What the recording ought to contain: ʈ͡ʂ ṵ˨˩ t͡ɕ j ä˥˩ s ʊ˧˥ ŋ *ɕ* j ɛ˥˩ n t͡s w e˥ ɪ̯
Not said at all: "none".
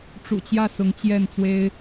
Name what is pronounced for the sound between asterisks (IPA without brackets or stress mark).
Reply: t͡ɕ